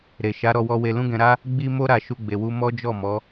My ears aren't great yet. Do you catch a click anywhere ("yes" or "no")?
no